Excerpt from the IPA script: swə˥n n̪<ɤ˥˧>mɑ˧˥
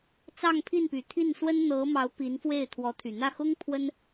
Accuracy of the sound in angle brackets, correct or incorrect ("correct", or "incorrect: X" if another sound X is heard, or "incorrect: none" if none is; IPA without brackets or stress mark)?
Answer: incorrect: ɤ˧˥